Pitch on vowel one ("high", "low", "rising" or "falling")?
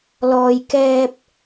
low